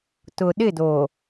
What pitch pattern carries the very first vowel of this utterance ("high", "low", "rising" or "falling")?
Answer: low